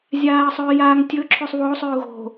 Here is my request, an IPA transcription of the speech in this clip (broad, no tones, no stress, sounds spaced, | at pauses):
zʲ aː ə̯ sˤ ɵː j aː ŋ tʲ ɵ ǁʰ ʉ sˤ β o sˤ ʉ ʊ̯ ɣ o̤